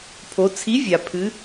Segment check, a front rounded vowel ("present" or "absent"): absent